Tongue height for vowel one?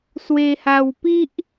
mid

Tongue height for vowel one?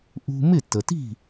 high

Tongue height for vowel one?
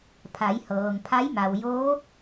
low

